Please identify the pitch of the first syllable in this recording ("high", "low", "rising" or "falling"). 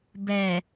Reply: low